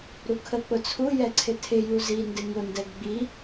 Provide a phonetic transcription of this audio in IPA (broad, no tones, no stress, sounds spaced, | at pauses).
ɾ u kʰ ə k͡p ʊ t͡sʰ u j ɛ ǀʰ ɪ tʰ ɪ j u z i n d ɪ ŋ ʊ n d ɛ ɡ ɡ͡b i